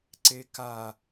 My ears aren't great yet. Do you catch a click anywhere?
yes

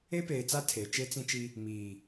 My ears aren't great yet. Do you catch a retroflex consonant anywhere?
no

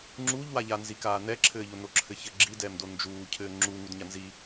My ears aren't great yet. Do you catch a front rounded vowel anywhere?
no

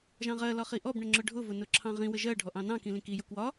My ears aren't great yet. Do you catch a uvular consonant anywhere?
yes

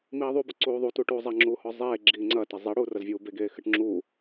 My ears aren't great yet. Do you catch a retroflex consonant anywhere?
yes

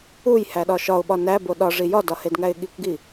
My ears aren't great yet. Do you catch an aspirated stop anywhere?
no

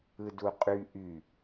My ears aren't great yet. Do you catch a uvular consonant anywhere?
yes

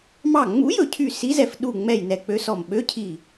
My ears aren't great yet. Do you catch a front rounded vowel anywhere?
yes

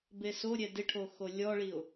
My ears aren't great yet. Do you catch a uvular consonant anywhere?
no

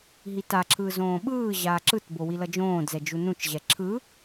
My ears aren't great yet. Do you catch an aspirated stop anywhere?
yes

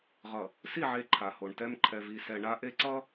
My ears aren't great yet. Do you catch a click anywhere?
yes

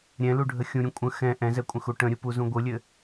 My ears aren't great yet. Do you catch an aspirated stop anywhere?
no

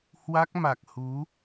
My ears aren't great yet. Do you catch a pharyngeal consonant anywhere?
no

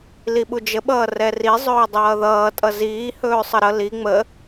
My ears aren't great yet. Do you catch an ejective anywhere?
yes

